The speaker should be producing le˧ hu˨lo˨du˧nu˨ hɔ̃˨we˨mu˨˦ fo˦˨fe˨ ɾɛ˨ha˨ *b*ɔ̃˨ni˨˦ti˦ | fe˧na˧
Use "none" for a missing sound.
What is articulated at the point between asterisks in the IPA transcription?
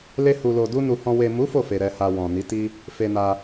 w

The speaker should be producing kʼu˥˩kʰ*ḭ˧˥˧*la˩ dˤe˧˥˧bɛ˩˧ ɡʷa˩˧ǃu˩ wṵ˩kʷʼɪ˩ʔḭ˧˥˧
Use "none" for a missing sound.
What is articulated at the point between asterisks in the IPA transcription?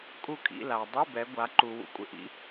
ḭ˧˥˧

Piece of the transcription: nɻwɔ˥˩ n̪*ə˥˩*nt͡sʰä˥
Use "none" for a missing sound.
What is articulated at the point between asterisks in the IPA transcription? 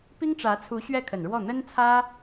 ə˥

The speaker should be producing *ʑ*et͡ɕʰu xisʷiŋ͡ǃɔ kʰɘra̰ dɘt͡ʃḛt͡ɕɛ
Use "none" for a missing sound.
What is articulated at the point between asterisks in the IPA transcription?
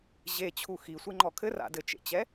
ʑ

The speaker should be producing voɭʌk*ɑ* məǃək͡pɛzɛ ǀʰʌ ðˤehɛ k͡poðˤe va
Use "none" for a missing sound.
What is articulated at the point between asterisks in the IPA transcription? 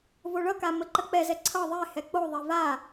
a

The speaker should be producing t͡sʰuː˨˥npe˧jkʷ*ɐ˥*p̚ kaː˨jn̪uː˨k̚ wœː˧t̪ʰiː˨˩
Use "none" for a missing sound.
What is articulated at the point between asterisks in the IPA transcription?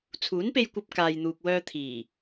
ɐ˧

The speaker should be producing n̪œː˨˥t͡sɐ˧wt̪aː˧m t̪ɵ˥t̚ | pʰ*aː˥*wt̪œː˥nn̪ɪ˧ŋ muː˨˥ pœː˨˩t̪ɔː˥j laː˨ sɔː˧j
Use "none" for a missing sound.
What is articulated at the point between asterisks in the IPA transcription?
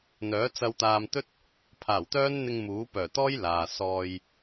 aː˨˩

